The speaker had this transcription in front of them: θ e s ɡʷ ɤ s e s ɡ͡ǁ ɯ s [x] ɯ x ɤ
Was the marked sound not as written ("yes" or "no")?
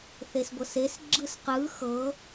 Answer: yes